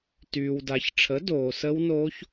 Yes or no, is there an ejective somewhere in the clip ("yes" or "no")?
no